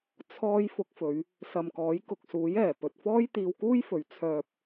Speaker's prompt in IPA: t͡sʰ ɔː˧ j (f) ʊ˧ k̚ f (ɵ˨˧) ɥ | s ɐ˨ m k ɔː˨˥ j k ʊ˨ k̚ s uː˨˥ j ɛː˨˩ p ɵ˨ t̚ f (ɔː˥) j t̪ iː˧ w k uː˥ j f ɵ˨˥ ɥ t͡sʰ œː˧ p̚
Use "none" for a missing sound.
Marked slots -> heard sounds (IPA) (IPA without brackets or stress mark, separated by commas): f, ɵ˨˧, ɔː˥